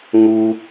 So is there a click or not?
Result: no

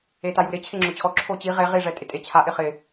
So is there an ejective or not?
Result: yes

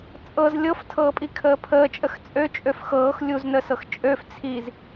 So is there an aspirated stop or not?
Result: yes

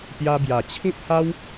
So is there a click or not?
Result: no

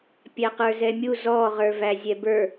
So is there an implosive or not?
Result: no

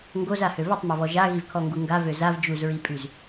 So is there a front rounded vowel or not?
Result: yes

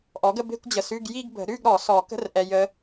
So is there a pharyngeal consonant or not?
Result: no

